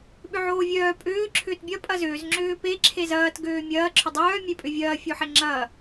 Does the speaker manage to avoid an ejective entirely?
no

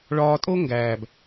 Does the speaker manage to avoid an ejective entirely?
no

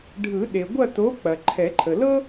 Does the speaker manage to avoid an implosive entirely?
no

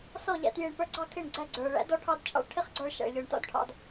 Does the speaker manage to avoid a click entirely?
no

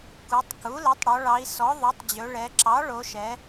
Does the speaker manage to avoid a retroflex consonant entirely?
no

